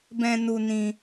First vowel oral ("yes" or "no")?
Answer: no